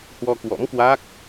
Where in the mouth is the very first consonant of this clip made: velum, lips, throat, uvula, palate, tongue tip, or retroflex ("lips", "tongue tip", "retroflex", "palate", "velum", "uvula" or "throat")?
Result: throat